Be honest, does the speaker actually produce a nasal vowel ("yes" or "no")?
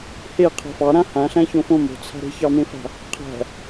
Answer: yes